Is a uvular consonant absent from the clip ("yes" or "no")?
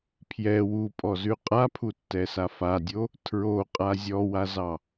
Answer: no